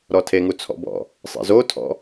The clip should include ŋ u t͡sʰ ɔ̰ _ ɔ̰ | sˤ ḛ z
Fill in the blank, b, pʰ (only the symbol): b